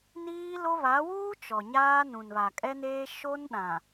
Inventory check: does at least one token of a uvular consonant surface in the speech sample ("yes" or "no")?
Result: no